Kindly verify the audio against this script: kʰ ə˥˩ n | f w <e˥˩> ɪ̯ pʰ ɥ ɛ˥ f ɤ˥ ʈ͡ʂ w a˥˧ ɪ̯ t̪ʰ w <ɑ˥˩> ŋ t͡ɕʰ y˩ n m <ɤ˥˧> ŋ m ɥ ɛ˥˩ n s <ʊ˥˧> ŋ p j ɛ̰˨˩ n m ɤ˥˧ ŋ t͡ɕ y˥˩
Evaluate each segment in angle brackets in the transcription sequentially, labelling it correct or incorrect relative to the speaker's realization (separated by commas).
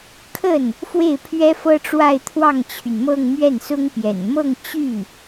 correct, correct, correct, incorrect